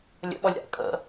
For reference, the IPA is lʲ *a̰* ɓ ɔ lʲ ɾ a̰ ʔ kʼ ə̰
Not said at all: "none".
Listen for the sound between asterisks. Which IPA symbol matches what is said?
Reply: ə̰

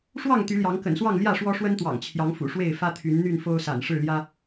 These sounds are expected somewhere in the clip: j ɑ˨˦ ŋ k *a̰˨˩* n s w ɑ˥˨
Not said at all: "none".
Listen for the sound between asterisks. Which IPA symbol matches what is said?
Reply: ə̰˨˩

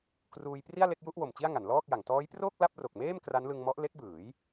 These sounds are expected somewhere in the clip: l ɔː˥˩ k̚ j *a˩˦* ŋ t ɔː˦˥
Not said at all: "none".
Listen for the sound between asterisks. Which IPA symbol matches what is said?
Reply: a˩˦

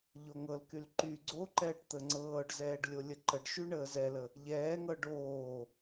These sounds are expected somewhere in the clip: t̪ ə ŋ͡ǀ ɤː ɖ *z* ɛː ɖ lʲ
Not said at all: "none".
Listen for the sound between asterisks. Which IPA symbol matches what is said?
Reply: z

